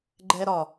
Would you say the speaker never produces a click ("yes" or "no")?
no